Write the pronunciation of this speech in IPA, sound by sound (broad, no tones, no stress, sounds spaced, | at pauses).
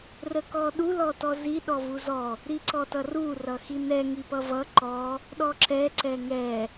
r ə k ɔ ɗ u l ɔ t ɔ z i ɗ ɔ v u z ɔ | ɾ i ǀ ɔ t ʌ r u r ʌ x i n ɛ ŋ i p ʌ v ʌ ǃ ɔ | ɗ ɔ ǁ ɛ ǀ ɛ ŋ ɛ